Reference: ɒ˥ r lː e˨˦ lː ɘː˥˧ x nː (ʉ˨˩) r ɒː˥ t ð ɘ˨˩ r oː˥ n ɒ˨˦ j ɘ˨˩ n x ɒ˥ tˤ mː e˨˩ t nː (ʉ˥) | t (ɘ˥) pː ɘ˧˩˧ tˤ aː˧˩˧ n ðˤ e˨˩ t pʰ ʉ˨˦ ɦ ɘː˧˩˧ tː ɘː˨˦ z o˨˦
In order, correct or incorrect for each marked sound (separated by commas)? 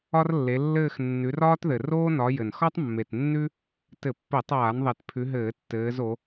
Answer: incorrect, correct, incorrect